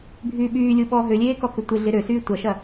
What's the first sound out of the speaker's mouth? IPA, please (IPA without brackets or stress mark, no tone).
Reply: bʱ